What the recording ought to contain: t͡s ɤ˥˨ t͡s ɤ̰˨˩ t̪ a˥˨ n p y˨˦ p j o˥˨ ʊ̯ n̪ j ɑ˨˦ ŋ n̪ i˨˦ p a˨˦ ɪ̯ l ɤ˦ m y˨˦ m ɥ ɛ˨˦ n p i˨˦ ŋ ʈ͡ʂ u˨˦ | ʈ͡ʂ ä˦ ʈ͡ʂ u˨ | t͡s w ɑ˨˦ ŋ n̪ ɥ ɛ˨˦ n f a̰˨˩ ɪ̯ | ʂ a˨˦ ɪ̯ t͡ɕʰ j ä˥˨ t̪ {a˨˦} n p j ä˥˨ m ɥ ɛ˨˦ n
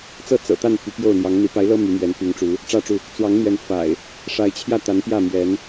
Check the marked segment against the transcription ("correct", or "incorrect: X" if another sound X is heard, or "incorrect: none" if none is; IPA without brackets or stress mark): correct